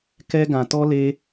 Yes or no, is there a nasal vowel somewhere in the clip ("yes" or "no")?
yes